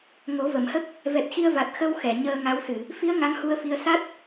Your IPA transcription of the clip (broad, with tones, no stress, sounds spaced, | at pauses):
ŋ o˨˩˦ v ə˨˩˨ m h ə˦˥ k̚ | v ɛ˨˩ t̚ x i˧ ə̯ v a˨˩ t̚ x ə˧ w x ɛ˨˩˨ ɲ əː˧ ŋ a˧˥ w s ɨ˨˩˨ | f i˧˥ ə̯ ŋ a˧˥ ŋ h u˧ ə̯ f i˧ ə̯ s a˦˥ t̚